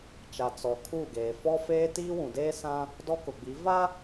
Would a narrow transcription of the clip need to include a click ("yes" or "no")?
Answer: no